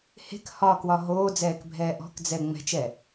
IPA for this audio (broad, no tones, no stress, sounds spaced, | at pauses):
h e̤ k h ɒ k w ɒ ɦ oː d͡z ɛː k bʱ ɛː ʔ ɔ̤ k d͡z ɛ ŋ͡m ɛ̤ t͡ʃ ɛ